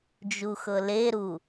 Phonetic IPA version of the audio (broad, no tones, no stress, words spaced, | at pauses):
d͡ʒuxɤleɾu